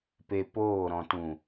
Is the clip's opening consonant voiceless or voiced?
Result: voiceless